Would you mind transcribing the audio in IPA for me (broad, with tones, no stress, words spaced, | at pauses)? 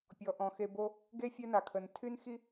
pʲɔ˩ʔɔ̃˩xe˨ bo˦ | ɡe˥fʲœ˦na˩kʰə˩n tʰy˥nxi˥